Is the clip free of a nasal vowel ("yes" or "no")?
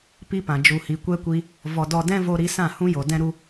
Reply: no